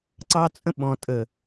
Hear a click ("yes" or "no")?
yes